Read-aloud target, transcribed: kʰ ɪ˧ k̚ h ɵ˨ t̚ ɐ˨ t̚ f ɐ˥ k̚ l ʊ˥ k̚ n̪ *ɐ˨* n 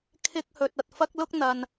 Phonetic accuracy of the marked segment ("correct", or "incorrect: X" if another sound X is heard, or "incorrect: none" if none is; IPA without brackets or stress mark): correct